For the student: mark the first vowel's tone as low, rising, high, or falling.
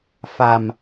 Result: low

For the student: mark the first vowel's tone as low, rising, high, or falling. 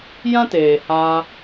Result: high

